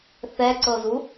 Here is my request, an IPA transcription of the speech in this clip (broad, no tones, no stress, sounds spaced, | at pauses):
θ ɛ ǀ ɤ z u